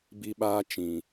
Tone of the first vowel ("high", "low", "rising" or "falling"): high